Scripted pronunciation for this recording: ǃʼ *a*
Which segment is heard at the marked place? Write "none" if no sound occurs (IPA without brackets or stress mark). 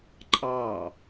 ɑ